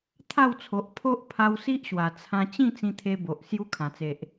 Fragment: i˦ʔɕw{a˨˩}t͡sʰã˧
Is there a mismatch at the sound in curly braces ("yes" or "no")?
no